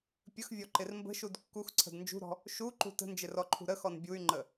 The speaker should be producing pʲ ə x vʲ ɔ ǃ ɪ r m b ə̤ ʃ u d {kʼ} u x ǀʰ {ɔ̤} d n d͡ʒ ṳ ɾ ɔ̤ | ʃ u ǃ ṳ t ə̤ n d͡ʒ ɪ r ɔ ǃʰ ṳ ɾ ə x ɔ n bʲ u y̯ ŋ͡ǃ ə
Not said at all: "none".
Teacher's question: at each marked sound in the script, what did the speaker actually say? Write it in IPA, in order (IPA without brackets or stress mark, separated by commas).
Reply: kː, ə̤